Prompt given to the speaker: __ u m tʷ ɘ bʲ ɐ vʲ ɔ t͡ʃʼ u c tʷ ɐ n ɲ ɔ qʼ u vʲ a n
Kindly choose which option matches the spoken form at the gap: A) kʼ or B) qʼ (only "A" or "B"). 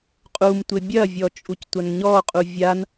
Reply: B